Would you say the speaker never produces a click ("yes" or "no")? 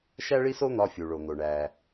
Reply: yes